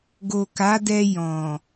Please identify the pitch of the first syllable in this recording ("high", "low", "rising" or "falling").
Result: low